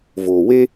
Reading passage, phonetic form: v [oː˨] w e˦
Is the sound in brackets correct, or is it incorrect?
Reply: correct